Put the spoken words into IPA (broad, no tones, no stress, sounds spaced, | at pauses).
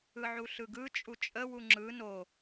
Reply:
ɯ ʕ u ɬ ɯ ɡ ɯ t͡ʃʼ u t͡ʃʼ ə w u ŋ͡ǁ ɯ n o